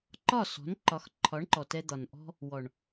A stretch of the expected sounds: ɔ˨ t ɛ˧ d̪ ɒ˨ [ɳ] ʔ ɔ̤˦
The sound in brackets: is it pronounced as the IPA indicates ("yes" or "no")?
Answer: no